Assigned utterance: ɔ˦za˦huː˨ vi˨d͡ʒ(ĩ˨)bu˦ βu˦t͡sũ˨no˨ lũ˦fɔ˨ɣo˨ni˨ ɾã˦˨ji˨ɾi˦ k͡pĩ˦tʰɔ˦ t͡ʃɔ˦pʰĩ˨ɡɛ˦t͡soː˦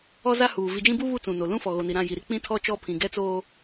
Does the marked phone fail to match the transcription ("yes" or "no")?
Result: yes